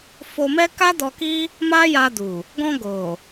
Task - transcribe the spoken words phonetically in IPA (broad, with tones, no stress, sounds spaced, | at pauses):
f o˧ m ɛ˦ k a˦ d ɔ˧ k i˦ | m a˦ j a˧ d u˨ | ɡ ɔ̃˧ ɡ o˨